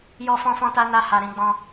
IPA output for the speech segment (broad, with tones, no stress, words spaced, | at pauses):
jɔ˦fɔ̃˦fɔ̃˦ta˦ na˧ ha˧ ɾĩ˧ɡ͡bɔ̃˧